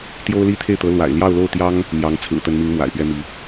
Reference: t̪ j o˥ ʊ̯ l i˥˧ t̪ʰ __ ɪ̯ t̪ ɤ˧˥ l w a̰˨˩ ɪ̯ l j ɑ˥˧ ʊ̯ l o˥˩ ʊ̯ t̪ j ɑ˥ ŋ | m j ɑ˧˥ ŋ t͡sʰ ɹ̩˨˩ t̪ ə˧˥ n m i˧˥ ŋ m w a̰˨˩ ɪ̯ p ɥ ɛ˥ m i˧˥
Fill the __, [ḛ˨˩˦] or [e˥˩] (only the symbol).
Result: e˥˩